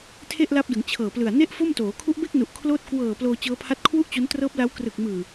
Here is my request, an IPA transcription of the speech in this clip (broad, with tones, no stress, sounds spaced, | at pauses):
tʰ e˥˩ ʔ l a˦˥ p̚ d ɯ˩˦ ŋ t͡ɕʰ ɤː˨˩ p l ɯ˨˩ a̯ n e˥˩ ʔ f o˥˩ m t oː˩˦ kʰ u˦˥ ʔ b e˥˩ k̚ n u˨˩ ʔ kʰ l oː˥˩ t̚ k w ɤː˨˩ p l oː˧ t͡ɕ ɤː˦˥ pʰ a˦˥ t̚ kʰ w u˥˩ ʔ t͡ɕ o˦˥ n t r ɤː˦˥ p̚ l a˦˥ w k r ɯ˨˩ k̚ m ɯː˨˩